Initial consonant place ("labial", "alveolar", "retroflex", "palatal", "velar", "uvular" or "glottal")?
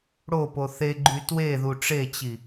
retroflex